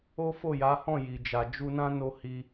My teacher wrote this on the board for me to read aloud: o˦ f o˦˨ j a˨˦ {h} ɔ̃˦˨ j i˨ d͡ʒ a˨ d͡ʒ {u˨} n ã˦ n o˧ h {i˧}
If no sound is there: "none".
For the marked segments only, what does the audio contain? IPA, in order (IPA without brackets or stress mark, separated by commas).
h, u˧, i˧